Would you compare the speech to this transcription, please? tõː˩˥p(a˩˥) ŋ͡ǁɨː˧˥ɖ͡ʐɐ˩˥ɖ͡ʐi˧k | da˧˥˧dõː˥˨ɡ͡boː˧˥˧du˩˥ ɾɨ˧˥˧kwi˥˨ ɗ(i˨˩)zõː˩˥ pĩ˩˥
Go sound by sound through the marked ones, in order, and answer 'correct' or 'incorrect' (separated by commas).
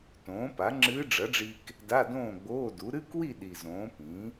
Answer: correct, correct